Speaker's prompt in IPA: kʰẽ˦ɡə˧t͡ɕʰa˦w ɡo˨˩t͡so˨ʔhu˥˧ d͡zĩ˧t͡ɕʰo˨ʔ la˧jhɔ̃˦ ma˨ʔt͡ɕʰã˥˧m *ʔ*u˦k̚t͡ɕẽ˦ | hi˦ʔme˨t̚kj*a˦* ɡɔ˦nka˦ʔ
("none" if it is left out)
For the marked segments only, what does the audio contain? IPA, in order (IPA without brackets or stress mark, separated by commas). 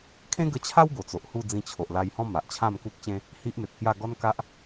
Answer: k, a˥˧